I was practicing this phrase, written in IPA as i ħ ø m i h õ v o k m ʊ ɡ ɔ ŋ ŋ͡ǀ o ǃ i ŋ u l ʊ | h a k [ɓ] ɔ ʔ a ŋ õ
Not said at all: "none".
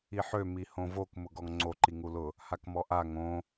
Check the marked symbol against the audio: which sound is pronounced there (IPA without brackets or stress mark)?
m